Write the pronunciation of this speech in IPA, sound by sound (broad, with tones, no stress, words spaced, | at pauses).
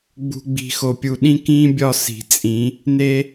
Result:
ɡ͡bṳ˨ɡ͡bi̤˨xo˨ pʲu˨ɗĩ˦kĩː˦bʲɒ˦˨ si̤˨t͡sʼĩ˨˦ | ne˦